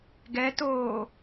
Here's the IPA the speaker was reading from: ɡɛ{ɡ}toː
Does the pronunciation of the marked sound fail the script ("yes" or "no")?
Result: yes